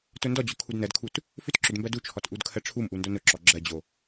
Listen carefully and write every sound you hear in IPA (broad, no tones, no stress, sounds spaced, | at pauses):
t ʊ n d ɔ d͡ʑ ʊ kʰ u d n ɜ d kʰ u t | f ʏ t ǁ ʏ d m b ɜ d u t͡ʃʰ ɔ t ʔ u d kʰ ɜ ʈ͡ʂʰ u m ʔ u n d o n ʊ ǁ ɔ ɡ͡ǁ ɜ d͡ʑ o